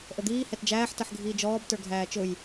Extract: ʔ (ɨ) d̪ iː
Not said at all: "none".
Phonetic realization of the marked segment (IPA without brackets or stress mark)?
ə